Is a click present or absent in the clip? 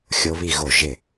absent